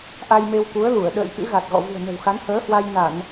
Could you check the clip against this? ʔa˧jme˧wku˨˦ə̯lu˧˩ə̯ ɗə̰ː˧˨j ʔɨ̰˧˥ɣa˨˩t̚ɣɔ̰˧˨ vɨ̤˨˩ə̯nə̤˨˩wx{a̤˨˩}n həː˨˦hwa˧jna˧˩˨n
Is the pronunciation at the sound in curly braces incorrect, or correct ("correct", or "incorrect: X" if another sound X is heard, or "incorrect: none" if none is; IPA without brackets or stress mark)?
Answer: incorrect: a˨˦